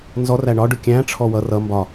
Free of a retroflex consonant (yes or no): no